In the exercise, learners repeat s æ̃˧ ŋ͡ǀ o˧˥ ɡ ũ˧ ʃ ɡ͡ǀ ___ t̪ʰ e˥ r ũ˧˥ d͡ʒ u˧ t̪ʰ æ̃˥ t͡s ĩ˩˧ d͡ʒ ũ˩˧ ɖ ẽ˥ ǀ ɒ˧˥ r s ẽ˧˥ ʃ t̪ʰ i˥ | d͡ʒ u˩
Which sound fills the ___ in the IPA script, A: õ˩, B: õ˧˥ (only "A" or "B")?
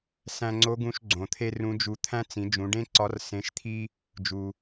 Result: A